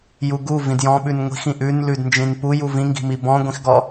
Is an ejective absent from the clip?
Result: yes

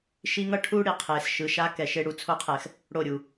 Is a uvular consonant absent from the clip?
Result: no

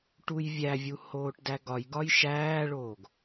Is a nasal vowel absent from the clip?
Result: yes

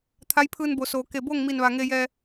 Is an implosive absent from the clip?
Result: yes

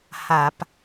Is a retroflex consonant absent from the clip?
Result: yes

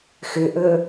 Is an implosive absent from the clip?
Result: yes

